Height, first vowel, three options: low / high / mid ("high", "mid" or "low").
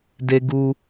mid